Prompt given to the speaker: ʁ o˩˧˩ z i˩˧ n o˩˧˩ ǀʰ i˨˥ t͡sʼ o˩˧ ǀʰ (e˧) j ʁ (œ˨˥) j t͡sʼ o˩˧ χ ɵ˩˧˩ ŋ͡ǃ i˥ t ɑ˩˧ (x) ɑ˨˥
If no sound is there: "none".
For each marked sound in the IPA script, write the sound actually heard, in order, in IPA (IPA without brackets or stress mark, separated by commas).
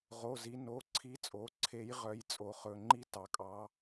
e˨˥, œ˨˥, kʼ